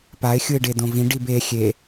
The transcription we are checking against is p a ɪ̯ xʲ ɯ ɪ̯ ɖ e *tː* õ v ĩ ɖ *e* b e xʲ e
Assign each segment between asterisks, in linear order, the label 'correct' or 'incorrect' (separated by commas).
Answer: incorrect, incorrect